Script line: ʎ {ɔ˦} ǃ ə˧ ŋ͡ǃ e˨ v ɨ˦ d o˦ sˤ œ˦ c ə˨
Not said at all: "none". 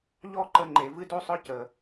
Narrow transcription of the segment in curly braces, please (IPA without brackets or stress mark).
ɔ˦